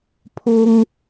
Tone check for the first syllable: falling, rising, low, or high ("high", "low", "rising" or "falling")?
high